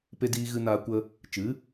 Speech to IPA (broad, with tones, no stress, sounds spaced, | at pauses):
p e˧ d iː˧ ɣ ɨ˧ n aː˧ kʷ ə˦ | t͡ʃ ɨ˨˦